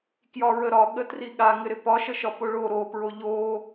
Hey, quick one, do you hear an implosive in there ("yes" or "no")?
yes